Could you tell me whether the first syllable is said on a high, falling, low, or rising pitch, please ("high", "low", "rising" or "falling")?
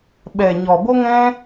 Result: low